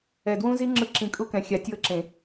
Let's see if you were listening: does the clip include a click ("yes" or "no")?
yes